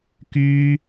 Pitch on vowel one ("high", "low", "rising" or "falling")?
high